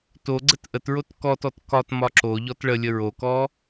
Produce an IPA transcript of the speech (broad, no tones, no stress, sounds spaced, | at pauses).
t o ɡ͡ǀ ə t ʔ ə t ɹ o t k ɔ t ɔ t k ɒ t m ɒ ǁ o ʎ ɔ t ɭ ə lʲ ə ɹ o k ɔ